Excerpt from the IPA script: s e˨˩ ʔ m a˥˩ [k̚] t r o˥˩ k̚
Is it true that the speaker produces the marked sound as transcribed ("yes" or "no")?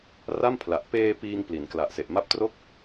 no